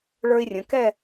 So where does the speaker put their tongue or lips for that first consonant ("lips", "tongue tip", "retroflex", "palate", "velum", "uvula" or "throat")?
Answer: retroflex